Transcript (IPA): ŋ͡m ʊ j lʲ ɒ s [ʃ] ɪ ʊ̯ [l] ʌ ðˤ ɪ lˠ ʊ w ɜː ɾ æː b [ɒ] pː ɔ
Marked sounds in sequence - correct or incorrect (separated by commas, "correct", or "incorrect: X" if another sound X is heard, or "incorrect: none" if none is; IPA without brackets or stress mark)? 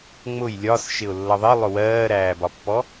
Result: correct, incorrect: lː, correct